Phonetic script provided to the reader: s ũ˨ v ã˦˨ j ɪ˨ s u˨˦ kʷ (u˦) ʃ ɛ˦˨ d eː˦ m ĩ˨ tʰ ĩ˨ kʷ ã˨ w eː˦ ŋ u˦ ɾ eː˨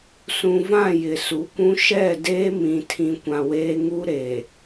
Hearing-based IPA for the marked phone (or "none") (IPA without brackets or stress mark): ũ˦